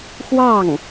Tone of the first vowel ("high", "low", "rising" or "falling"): falling